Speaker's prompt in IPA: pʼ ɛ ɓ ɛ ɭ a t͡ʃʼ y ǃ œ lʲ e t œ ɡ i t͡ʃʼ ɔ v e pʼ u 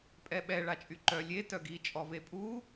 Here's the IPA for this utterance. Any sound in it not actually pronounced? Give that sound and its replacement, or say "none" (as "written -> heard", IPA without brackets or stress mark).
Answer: none